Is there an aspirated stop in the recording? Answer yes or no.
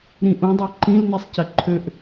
yes